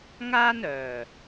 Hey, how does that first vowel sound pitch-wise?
high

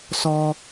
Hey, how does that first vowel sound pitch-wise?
low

